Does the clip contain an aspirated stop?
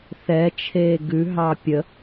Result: yes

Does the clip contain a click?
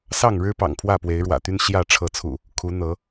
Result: no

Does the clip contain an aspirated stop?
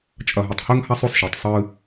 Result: no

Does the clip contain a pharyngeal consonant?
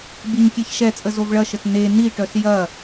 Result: no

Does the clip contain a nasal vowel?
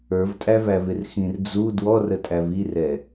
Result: yes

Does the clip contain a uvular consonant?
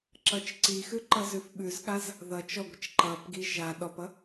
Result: no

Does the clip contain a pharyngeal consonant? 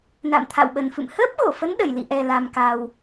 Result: no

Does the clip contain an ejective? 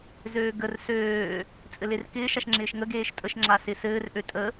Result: yes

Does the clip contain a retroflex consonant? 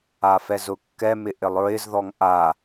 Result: no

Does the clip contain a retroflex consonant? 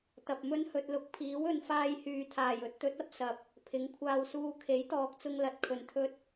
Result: no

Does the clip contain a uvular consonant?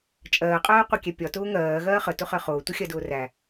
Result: yes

